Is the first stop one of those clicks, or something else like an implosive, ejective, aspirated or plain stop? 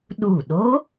implosive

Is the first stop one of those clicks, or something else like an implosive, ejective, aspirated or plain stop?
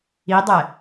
plain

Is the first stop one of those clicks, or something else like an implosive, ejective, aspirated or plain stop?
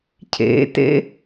aspirated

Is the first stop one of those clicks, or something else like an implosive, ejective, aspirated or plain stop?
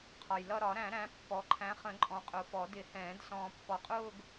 aspirated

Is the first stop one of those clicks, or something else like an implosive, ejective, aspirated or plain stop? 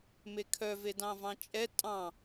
aspirated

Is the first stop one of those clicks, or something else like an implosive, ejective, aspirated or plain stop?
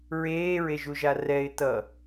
plain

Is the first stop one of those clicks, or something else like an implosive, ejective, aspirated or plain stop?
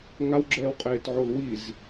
click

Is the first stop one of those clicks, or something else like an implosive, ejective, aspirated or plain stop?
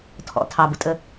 aspirated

